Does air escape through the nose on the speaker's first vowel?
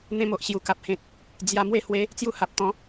yes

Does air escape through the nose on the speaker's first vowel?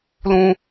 yes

